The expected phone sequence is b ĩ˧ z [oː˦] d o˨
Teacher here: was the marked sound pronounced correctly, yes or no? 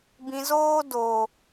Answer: yes